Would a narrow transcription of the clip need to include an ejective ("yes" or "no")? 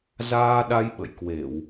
no